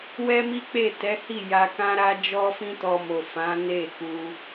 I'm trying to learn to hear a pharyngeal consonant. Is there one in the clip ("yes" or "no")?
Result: no